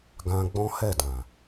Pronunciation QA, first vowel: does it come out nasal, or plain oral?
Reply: nasal